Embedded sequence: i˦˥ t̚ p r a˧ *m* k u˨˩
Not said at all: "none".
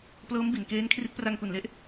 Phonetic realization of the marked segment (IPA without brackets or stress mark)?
ŋ